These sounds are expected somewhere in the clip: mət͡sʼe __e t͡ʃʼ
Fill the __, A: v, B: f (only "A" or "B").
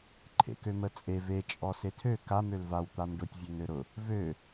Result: A